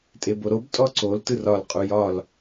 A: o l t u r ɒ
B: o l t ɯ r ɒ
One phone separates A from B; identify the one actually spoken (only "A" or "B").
B